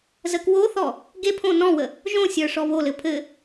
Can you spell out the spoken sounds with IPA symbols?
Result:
z ə k w o θ ɔ | ɡ e pʰ õ n ɔ̃ w ə | ʒ õ sʲ ə˞ ʂ ɔ β o l ɘ pʰ ɘ

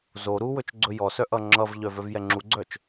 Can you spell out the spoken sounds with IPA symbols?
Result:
z o ɾ u w ɵ t͡ʃ ɡ͡ǀ ɵ j ɔ s œ ʔ ʌ ŋ͡ǁ ʌ v ʎ œ v œ v j ɛ ŋ͡ǁ u ɡ͡ǀ œ t͡ʃ

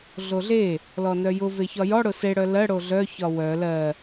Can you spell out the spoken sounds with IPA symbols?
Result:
ɮ o ɮ e | l ɔ n œ j ʊ v e ç ɒ j ɔ ɽ ʊ s e ɽ œ l ɜ ɽ o ɮ œ ç ɒ w œ l ɜ

